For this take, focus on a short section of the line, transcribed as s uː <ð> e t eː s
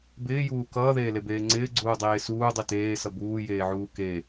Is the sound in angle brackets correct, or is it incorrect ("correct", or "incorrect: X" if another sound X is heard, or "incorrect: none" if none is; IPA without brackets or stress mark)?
incorrect: dˤ